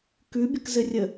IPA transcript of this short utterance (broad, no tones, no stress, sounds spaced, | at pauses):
k ʉ bʲ ə k z ɘ rʲ ə